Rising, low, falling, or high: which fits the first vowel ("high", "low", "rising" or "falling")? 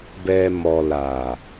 low